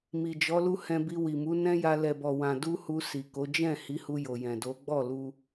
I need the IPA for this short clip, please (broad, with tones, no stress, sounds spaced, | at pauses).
m i˨ d͡ʒ ɔ˨˦ l u˦ h ɛ̃˧ b i˧ w i˨ m u˨˦ n ɛ̃˦ j a˧ l ɛ˨ b ɔ˨ w ã˨ d u˧ h u˧ s i˨ k o˨˦ d͡ʒ ɛ̃˦˨ h i˨˦ h u˧ j o˨ j ɛ̃˨ d o˨˦ ɡ͡b ɔ˦˨ l u˧